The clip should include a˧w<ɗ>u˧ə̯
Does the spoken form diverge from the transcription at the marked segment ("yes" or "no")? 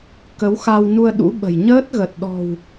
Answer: yes